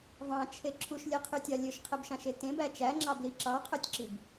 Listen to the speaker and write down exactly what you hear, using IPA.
v ɑ̃ t͡ʃʰ e ǁʰ u ʃ lʲ e qʰ y tʲ ɑ lʲ ø ʃ qʰ e b ʃ ɑ̃ ʃ e t ẽ b æ t͡ʃ æ ŋ͡ǁ ɑ b l i ǁ ɑ qʰ ø tʲ ǁ i b

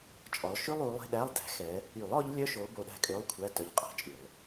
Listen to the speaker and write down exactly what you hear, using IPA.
t͡ʃʼ ɔ˨˦ lˠ ʃ ʉ˥ lˠ u˨˦ lˠ e̤˧˥˧ ɗ æ˧˥˧ lˠ d æ̤˨˦ x ɛ˨˦ | y˨˩˦ lˠ ɔ˨˦ ʎ lʲ œ˧˥˧ ʃ o˨˦ b o˨˦ ɗ æ̤˧˥˧ kʼ ø˧˥˧ lˠ kʷʰ æ˧˥˧ t œ˧˥˧ ʎ qʼ æ̤˥ t͡ʃʼ y˨˩˦ lˠ

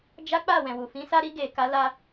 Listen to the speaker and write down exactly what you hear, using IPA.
d͡ʒ a˦ k͡p a˦˨ w ɛ̃˨ w u˨ f ĩ˨˦ s a˧ ɾ i˧ ɡ e˨ k a˨˦ l a˧

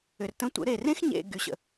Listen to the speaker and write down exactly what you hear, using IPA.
ʏ˨ r t ə̃˧ tʷ ə̰˨˦ ɾ e˨ r ẽ˦ x ɲ ḛ˨ ɡ y˨ ɕ ə̰˨

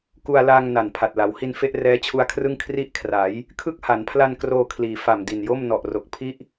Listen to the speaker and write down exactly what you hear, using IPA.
k u˧ a̯ l aː˧ ŋ n a˨˩ n pʰ a˨˩ t̚ l a˩˦ w h i˧ n f e˥˩ ʔ r ɛː˦˥ t͡ɕʰ u˧ a̯ kʰ r ɯ˥˩ ŋ kʰ r i˥˩ ʔ kʰ r a˩˦ j | kʰ ɯ˥˩ k̚ h a˩˦ n pʰ l a˧ n k r oː˧ kʰ l iː˩˦ f a˨˩ m d i˨˩ n j o˥˩ m n ɔ˨˩ ʔ r o˨˩ k̚ pʰ i˥˩ ʔ

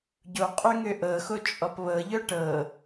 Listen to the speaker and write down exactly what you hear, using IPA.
ɟ o qʼ ø ŋ ø ʔ ɤ x o t͡ʃʼ ɔ p β ɤ ʎ œ ʈ ɤ

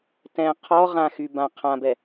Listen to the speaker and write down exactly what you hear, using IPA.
t ɛ̃ qʰ ɔ ʁ ã x y b ã qʰ ã b ɛ

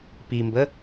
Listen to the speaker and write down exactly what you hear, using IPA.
p i m b ə

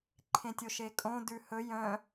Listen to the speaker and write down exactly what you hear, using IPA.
ǃʰ ẽ tʲ o ʃ e kʼ õ d ʉ h ɵ j œ̃

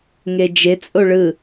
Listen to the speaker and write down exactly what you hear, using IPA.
ŋ e d͡ʒ e t͡sʼ o ɭ ɯ

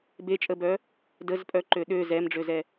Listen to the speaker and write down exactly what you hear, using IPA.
b e t͡ʃʼ ə b œ | d ə z pʼ œ ǃ ø ɗ ø z ɛ m ɖ͡ʐ ø z ɛ

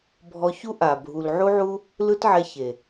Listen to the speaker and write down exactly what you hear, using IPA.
bʱ ɔ˧ ç u˦ ʔ a˨ bʱ u˨ l ʕ u˦ ʕ u˦ | l ɯ˦ t ʕ ɛ˧ ç e˨

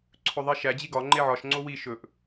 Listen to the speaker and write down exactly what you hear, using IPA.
ǀʰ ɵ ðˤ i ʃ æ d͡ʑ i ɡ ɒ ŋ͡ǃ e ʕ ɒ ʃ ŋ͡ǀ o w i ʃ ɵ ʔ

